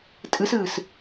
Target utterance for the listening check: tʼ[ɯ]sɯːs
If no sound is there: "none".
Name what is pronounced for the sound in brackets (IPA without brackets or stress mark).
ɯ